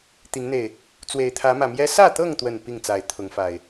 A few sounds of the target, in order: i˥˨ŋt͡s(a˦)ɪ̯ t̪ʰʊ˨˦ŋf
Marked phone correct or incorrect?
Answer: incorrect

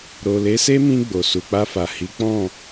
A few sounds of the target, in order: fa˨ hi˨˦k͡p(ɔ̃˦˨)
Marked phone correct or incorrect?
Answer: correct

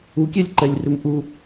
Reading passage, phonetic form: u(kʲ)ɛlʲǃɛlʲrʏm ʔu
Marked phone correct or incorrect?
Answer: correct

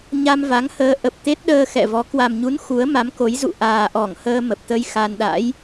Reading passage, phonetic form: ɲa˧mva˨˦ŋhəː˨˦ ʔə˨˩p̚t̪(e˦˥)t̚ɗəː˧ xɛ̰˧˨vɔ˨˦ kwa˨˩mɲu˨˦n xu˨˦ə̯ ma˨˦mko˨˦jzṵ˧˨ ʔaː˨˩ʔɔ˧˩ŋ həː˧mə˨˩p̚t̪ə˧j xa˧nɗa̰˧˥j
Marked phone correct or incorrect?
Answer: correct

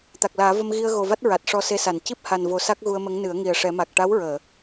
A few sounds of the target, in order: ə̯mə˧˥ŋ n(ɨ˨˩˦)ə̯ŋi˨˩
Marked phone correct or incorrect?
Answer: correct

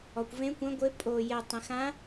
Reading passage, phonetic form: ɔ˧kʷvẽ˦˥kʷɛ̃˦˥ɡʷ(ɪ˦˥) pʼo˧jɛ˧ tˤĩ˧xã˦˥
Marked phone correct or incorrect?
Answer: correct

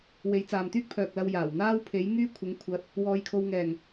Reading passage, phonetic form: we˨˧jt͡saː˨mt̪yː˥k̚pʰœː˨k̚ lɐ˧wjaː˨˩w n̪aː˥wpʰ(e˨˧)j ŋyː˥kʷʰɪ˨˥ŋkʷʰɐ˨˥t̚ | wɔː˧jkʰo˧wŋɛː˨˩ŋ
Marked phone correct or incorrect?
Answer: incorrect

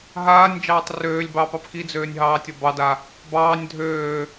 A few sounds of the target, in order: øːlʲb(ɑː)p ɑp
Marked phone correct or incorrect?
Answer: correct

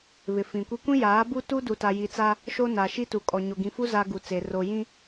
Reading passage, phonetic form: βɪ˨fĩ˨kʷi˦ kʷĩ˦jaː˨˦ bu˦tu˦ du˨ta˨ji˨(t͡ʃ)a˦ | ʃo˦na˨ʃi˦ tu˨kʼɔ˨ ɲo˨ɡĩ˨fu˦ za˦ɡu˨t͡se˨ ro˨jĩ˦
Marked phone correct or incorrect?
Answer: incorrect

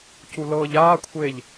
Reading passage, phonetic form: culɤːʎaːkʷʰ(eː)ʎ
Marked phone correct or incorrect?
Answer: correct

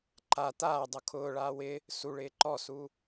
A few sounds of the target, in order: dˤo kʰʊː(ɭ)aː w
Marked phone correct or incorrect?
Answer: correct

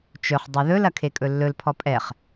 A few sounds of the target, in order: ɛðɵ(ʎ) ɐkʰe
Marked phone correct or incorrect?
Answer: incorrect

